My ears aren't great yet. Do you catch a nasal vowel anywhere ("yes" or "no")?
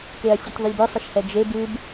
no